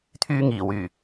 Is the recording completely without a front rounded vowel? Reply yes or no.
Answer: no